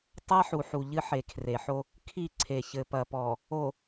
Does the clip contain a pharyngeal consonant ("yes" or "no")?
yes